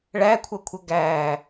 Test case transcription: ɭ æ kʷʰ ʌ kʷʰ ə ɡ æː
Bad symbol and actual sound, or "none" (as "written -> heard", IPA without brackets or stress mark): none